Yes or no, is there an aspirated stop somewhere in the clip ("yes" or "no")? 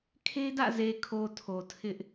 yes